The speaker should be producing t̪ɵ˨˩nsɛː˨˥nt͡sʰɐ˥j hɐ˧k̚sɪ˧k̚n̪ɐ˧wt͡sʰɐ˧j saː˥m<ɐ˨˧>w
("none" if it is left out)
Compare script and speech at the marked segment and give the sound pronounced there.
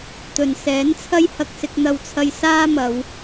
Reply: ɐ˨˧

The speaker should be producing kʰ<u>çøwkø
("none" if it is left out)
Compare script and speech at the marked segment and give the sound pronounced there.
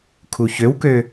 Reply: u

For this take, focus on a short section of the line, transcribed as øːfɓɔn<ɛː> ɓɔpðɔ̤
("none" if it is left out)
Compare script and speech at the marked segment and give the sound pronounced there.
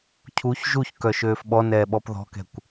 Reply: ɛː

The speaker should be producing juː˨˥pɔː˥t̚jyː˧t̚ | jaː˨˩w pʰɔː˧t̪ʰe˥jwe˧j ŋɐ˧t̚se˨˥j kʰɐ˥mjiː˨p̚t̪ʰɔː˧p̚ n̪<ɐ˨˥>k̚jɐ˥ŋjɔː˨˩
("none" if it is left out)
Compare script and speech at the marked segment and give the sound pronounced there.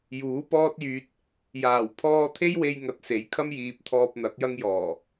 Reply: ɐ˨˥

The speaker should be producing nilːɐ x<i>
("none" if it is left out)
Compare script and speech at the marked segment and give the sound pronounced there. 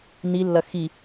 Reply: i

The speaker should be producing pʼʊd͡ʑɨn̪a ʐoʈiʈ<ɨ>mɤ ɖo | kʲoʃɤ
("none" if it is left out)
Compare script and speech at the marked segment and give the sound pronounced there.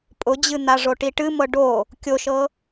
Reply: ɨ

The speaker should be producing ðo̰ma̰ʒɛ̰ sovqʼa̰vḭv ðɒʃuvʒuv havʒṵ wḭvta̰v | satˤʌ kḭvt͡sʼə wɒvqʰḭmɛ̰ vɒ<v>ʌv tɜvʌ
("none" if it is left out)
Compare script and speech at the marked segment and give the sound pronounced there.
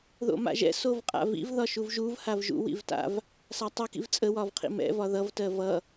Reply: ð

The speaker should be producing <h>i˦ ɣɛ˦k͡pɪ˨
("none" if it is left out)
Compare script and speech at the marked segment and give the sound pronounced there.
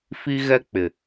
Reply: f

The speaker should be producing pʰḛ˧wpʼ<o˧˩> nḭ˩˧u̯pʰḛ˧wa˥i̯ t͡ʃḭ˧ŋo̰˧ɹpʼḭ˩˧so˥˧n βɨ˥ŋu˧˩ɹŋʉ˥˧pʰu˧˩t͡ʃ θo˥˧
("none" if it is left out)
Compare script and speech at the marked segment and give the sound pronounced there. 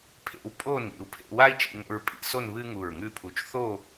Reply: o˥˧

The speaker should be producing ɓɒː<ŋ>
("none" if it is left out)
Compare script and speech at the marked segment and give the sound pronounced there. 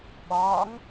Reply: ŋ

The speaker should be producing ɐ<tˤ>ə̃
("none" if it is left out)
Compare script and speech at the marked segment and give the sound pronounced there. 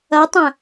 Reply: tˤ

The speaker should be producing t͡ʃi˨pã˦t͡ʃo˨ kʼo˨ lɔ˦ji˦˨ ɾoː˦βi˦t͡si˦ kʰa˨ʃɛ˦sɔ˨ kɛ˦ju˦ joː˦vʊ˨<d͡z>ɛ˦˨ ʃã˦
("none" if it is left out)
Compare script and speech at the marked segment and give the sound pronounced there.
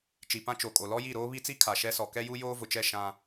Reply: t͡ʃ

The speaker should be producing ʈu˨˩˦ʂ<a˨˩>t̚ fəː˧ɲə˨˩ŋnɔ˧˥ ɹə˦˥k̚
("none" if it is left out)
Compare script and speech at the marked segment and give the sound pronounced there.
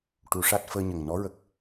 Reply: a˦˥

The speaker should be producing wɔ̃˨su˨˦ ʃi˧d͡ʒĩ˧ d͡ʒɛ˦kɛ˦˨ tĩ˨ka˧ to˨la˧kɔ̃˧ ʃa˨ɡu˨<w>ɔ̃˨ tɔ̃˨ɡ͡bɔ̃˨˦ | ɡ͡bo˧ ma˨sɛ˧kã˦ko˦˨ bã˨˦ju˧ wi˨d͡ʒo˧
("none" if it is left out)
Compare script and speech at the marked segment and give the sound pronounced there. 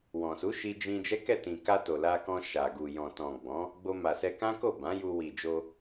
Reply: j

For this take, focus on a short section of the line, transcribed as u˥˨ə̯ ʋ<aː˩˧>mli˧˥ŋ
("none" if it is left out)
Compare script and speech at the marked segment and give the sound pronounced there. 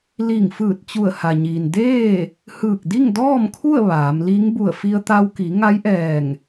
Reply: aː˩˧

